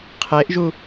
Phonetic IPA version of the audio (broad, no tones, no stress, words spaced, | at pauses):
qʰeʔʒu